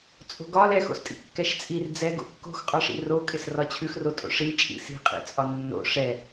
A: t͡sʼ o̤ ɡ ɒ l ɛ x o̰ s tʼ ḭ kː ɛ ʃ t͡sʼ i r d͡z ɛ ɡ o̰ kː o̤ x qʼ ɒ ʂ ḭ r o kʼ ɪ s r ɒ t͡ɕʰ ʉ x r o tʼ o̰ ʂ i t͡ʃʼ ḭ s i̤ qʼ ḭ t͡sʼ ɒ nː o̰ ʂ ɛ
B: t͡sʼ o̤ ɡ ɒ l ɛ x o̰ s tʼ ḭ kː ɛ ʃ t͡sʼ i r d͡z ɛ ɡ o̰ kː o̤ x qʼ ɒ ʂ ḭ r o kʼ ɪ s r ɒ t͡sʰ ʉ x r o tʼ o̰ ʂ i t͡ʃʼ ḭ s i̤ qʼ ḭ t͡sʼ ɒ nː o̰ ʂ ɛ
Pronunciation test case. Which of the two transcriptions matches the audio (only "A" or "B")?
A